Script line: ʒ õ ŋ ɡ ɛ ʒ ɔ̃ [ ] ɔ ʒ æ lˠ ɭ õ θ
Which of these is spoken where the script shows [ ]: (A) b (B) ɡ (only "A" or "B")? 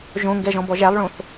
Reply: A